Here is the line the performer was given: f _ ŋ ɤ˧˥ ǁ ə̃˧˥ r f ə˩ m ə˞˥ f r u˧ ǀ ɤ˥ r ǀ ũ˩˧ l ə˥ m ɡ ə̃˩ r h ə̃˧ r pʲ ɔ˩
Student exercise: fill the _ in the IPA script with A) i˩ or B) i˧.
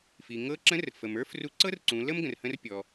A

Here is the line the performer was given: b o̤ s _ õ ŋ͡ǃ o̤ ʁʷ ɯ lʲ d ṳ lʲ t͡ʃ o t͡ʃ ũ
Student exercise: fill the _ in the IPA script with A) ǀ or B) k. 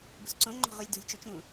A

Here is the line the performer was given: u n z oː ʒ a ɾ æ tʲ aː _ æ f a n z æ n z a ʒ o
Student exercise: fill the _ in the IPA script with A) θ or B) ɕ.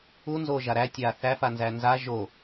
A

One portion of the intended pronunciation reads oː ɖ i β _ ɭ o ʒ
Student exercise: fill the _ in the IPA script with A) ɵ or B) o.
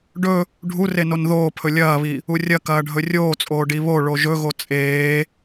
B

